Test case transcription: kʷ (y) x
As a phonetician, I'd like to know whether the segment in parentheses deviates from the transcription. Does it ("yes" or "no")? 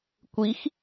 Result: yes